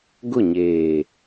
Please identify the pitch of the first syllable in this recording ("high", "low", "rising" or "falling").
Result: falling